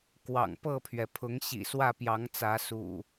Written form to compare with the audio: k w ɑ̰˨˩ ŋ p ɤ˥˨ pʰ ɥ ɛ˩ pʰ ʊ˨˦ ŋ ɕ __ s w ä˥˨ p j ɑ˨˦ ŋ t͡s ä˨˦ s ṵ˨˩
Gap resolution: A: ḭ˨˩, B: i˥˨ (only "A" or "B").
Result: A